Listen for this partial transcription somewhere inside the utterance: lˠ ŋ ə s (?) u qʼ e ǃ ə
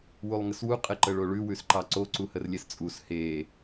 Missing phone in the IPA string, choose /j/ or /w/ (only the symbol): w